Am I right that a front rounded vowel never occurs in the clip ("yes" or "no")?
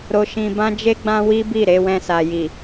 yes